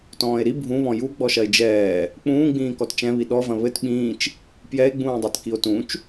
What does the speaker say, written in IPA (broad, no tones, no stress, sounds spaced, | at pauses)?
t ɔ̃ː e̯ ɾ i bʱ ũ β ɔ̃ j u ɡ͡b ɔ ʃ ɐ e̯ d͡ʒ ɛː | k͡p ũː ɡ͡b ĩː k ɔ t t͡ʃ ɛ̃ β i ɗ ɔ v ɐ̃ β ɘ t ɓ ĩː t͡ʃ | p j ɛ e̯ ɡ͡b ũː dˤ ɐ t k i o̯ t ũ t͡ʃ